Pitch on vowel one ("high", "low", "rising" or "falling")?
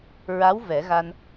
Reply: rising